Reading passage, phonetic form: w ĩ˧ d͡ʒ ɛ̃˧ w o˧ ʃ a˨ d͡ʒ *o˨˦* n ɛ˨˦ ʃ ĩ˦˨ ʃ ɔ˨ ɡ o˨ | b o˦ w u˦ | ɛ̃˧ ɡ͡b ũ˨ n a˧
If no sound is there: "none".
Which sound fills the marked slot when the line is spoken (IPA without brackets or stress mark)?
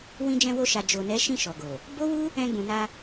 o˨